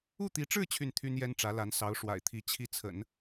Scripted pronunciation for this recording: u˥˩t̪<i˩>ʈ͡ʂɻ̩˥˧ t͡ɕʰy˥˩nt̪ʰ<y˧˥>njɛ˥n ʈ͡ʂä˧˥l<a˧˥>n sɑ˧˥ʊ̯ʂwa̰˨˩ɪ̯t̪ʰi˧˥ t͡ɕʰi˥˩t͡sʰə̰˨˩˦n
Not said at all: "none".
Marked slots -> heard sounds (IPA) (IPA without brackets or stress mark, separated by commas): i˧˥, y˥, a˧˥